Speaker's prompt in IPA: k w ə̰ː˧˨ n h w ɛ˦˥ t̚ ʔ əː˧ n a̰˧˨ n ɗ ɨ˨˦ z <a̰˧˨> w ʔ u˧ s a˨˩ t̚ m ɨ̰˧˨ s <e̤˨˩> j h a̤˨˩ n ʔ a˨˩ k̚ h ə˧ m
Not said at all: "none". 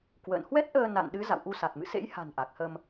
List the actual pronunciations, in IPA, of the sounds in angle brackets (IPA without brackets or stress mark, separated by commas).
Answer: a̰˧˨, ḛ˧˥